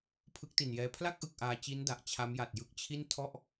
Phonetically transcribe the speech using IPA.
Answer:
pʰ ɯ˦˥ k̚ t i˨˩ n j ɛː˦˥ pʰ l a˥˩ k̚ ʔ ɯ˨˩ k̚ ʔ aː˧ t͡ɕ i˦˥ n d a˨˩ ʔ t͡ɕʰ a˦˥ m j a˨˩ t̚ j ɯ˦˥ k̚ t͡ɕʰ i˥˩ n tʰ ɔ˥˩ ʔ

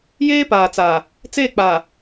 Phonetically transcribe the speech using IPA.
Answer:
j eː˦ p aː˨ t͡s aː˨ | t͡s eː˦˨ k͡p aː˨

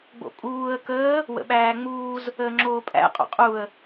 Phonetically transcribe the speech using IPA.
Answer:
ɡ͡b o̰ kʼ uː ə̯ k əː | w ə̰ ɓ æː ŋ͡m uː z | əː ŋ͡ǁ oː pʼ æ̰ qʼ o̰ qʼ u ə̯

